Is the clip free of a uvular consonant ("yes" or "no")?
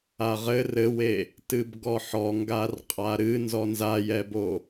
no